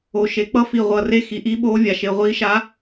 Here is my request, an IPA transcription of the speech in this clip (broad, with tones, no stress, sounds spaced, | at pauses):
o˨˩ ʃ e˨˩ k͡p ʌ˧˥ f i˨˩ ʁʷ ʌː˨˩ r e˧˥ x i˨˩ ʔ iː˧˥ ɓ oː˧˥ vʲ a˨˩ ʃ e˨˩ ʁʷ iː˧˥ ʃ a˧˥